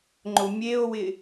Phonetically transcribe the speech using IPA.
ŋ͡ǃʊmʲeo̯wɪ

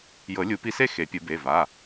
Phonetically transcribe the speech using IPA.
jɤ˨˩˦lʲu˨˩˦pi˧se˥˧ xe˨˩˦pʲɯ˨˩˦ be˩˧˩va˩˧˩

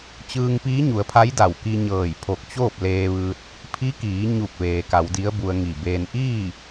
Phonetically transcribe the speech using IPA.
t͡ɕɯː˧ŋpiː˧˥ɲu˩˧ə̯pʰa˧˥j da˧˩wki˧ɲɤː˧˩j pʰo˧˩k̚t͡ɕoː˥˨p̚leː˧ʋɯː˧t̚ | pʰi˧˥kiː˩˧ ɲu˧˩k̚ ʋeː˩ka˩˧wdi˧˥ə̯ bu˧ə̯ŋi˧˩beː˧n ʔiː˥˨

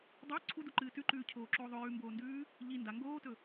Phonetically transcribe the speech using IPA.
dˤe ǀʰuduǃɨː tʉǃʉːcʰoːǁoː ðˤɵjʉːmboːndʉː | ʎi nda ŋɡoːtɵ

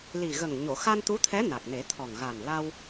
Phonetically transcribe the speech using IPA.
li˨˩ɣə˨˩ŋ ɲo˨˩˨xa˧n t̪u˧˥t̪ʰɛ˧˥ na˨˩k̚ne˨˩˦t̪ʰɔ˨˩ŋ ɣa˨˩nla˧w

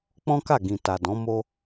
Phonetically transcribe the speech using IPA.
k͡pɔ̃˦ka˦˨ɡĩ˨ ta˨dɔ̃˨˦ mo˦

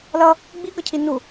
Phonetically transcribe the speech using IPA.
lʌ | ɡ͡biɡʌcʰi nu

